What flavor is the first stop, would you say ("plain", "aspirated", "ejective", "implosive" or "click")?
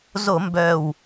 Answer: plain